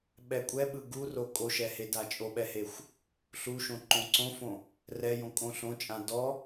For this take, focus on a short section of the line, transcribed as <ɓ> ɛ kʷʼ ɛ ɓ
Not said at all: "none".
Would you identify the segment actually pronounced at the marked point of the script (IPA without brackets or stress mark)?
ɓ